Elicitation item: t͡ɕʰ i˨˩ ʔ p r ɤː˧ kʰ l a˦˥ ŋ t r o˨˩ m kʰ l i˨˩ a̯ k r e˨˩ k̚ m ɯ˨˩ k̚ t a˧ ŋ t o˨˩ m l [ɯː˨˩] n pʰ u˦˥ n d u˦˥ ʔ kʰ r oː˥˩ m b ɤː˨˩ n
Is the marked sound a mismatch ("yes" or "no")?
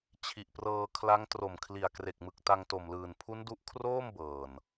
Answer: no